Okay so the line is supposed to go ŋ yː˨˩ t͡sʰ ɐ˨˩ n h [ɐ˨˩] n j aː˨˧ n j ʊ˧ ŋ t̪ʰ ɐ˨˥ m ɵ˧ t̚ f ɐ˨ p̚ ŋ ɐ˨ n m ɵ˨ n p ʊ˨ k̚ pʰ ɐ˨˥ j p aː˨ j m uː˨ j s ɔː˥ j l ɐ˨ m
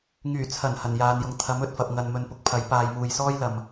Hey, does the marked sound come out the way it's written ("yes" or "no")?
yes